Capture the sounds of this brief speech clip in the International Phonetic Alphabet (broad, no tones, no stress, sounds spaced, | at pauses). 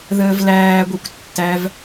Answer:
ð əː v l æː ɡʷ i kʷ tː æ v